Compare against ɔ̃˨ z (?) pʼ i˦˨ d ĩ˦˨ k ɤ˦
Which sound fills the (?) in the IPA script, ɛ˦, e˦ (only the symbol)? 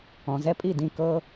ɛ˦